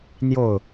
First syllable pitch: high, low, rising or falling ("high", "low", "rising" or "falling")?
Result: falling